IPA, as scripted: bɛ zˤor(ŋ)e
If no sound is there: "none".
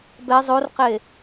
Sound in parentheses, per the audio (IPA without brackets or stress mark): q